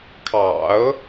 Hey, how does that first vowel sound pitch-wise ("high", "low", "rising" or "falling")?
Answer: low